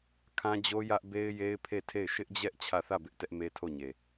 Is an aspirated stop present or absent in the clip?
present